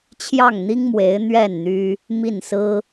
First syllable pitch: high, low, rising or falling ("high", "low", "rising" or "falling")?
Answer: falling